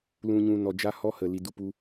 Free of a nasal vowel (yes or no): no